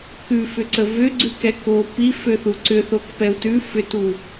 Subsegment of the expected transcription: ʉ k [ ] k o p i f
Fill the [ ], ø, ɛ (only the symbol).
ɛ